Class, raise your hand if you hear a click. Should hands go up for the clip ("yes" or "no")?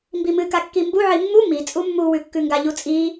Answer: no